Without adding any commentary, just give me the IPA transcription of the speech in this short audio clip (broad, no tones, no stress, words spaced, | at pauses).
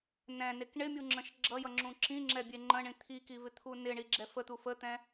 nɛ̃nek ɳɪmʲuŋ͡ǁə̃ʃ ɡ͡ǁʌjʌŋ͡ǁũ ǁĩŋ͡ǁɛbʲe ŋ͡ǃə̃ɳĩ t̪ʰikivɪt̪ʰu nɪɳiɡ͡ǁɛ fət̪u fət̪ɛ̃